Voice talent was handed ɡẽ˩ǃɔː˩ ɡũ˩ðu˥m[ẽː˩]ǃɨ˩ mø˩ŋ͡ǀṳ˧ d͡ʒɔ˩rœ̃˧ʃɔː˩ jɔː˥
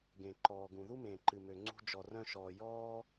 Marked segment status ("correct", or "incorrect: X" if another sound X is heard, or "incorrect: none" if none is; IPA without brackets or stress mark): correct